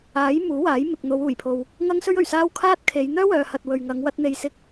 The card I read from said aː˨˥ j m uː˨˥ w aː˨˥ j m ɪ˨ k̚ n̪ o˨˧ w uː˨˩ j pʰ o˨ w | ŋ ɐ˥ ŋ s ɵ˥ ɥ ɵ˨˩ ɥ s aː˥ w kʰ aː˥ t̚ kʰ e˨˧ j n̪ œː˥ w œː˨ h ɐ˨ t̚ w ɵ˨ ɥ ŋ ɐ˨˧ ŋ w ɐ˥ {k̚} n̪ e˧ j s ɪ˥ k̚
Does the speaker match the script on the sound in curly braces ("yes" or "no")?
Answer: no